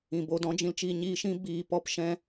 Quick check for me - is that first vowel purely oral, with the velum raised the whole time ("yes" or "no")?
no